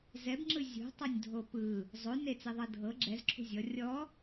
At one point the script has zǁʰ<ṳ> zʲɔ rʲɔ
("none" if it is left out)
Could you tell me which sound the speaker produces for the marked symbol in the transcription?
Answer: ṳ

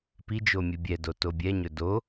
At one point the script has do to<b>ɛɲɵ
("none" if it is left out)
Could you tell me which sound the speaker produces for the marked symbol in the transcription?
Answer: bʲ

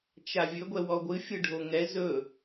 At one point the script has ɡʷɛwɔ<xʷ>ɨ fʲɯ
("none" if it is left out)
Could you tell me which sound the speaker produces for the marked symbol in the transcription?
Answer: ɡʷ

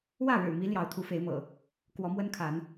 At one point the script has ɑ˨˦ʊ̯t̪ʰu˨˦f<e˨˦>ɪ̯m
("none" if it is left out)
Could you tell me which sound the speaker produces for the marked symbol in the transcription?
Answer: e˨˦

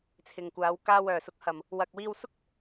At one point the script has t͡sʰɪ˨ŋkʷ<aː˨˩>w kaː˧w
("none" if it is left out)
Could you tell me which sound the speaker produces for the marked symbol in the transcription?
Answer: aː˨˧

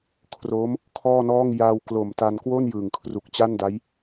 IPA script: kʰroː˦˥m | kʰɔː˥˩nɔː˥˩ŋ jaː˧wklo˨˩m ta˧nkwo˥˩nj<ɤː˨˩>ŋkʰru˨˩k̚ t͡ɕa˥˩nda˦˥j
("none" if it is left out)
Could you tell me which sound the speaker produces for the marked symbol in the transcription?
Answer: ɯː˨˩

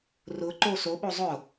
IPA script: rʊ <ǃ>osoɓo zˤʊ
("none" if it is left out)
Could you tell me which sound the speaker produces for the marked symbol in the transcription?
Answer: ǃ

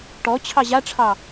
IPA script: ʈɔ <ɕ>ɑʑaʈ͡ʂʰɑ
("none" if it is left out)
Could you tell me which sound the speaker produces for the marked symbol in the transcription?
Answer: t͡ɕʰ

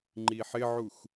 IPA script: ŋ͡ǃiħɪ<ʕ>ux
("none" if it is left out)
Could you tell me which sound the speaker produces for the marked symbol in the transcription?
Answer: ʕ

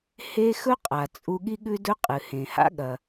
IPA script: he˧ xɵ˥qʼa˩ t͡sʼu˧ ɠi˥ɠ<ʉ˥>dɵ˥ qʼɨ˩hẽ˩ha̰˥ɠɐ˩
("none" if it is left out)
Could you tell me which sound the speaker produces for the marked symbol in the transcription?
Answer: ʉ˥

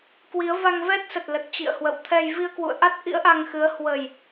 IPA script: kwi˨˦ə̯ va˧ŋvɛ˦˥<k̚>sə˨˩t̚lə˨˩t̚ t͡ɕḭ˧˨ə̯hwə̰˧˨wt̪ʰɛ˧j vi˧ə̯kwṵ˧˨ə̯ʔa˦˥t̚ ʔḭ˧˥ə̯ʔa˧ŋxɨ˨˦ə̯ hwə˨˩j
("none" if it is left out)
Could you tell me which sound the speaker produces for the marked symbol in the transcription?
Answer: t̚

